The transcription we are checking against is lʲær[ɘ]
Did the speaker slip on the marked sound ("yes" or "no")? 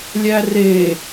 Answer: yes